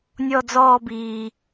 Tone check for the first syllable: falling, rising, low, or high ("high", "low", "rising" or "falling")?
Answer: falling